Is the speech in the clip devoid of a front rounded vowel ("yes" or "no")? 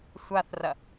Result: yes